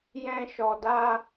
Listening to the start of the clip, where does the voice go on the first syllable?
high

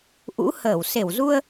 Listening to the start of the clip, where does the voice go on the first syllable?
rising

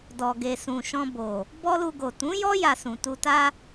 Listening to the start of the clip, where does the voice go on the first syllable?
low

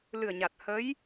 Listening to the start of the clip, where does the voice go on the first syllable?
low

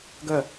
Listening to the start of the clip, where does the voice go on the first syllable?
falling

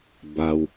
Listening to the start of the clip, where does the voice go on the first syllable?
low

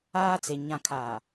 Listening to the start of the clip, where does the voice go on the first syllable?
high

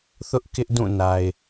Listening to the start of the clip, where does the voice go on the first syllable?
high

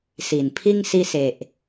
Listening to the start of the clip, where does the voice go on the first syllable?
low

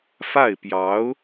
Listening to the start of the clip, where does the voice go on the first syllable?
falling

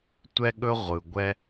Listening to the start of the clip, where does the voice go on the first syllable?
high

